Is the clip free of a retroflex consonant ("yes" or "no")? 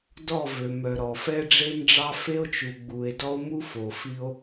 no